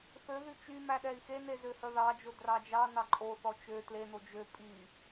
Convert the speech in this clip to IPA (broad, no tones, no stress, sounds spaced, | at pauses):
θ ø ð y t͡ʃ y m æ ɗ ɛ i̯ x e n e z ø h œ ð ɑ d͡ʒ o d r ɑ d͡ʒ ɑ n ɑ ǃʼ o θ ɔ t͡ʃ ø t l e n o d͡ʒ ø pʼ i